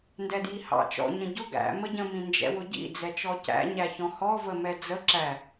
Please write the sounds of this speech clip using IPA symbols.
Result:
ndɛdjihɑ̰ t͡ʃɔ̰ ɲə̃ɟʊ ɡæ̰ məɟə̃ mĩnd͡ʒɛ̰wʊɟḭ d͡zɛt͡ʃɔcæ̰ ɲæçɔ̃hɔ vəmɛd͡zə ǁæ

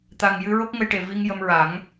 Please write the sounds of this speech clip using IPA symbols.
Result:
t̪a˨˩ŋjɨ˧ɹo˦˥k̚ ŋə˧jʈe˨˩ vi˧ŋjə˧mɹa˨˩˦ŋ

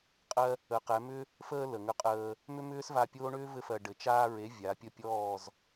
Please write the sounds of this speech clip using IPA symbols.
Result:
qʼɜ˧ | ə˨˦qɛ˨˦ mʏ˦ | fəː˧ lə˨ŋʏ˧qʼəː˧ | mʏ˦mʏː˦sva˧pʲoː˦ ɳʏː˦vɘ˧fɜ˨ ɖɘ˨t͡ʃaː˧ɹe˨˦ vʲa˨˦ pʲə˦˨pʲɔː˦˨z

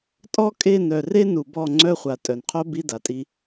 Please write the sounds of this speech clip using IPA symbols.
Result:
tʼɔ˦kʼe˦˨n œ˨re˦ nu˨bɔ˦˨ŋ͡ǀœ˦ χʷa˨tʼœ˨nqʰo˦ bi˦da˨tʼi˦

